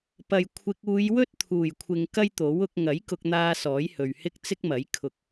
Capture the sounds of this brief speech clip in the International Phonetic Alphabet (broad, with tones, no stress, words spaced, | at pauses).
pɐ˨j kʷʰɪ˧k̚ uː˨˧jwɵ˥t̚t̪ʰuː˨˩jkʷʰɪ˨ŋ kɐ˥jt̪o˨˥wʊ˨˥k̚ ŋɐ˨˥jkʊ˧k̚n̪aː˧ sɔː˨˥jhɵ˨ɥhɪ˥k̚ t͡sɪ˥k̚mɐ˨˥j kʰʊ˧k̚